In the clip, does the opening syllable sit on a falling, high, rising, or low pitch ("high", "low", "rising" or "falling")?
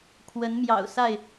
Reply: rising